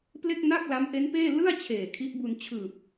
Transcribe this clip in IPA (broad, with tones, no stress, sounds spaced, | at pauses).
p l e˥˩ k̚ n a˥˩ k̚ l a˦˥ m ʔ e˦˥ n p eː˥˩ l ɯ˥˩ a̯ t͡ɕʰ eː˨˩ kʰ i˦˥ ʔ b u˧ n t͡ɕʰ ɯː˨˩ p̚